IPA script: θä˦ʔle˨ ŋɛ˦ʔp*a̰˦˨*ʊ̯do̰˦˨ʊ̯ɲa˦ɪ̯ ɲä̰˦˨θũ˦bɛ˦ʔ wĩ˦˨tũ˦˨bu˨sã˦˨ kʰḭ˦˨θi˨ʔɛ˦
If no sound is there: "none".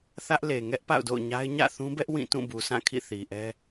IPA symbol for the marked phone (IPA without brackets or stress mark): a̰˦˨